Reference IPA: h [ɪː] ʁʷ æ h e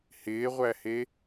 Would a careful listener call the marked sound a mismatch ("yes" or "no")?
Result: no